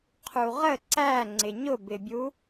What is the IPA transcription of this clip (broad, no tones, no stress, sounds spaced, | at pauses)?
qʰ u ʁ ə ǀ æ ŋ͡ǀ ɪ ɲ ʊ b ɪ bʲ u